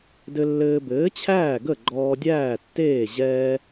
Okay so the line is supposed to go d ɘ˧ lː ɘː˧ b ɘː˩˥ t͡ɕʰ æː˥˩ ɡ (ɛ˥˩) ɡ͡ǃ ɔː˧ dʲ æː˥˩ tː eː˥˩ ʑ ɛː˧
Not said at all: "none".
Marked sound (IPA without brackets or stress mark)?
ə˥˩